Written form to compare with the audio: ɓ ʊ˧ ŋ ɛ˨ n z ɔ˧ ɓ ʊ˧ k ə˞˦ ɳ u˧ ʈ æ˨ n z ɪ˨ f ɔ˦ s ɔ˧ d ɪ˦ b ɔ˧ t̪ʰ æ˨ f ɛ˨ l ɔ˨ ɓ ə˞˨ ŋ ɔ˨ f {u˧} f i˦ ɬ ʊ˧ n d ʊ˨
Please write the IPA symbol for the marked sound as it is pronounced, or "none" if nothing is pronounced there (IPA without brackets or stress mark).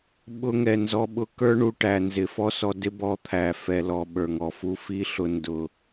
u˧